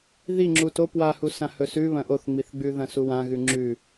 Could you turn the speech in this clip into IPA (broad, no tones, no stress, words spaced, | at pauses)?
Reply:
ði ŋ͡ǁuto pwahu sãhɵsʉ βɐ̃ʔoθŋ͡miθɡ͡bʉ ðɐ̃suwãɣʉ ŋ͡ǁʉ